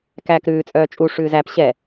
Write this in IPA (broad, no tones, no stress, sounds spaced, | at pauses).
k æː k ɾ ʉː t͡sʼ œː t͡ʃʼ u ʂ ʉː z æ p ɕ ɛ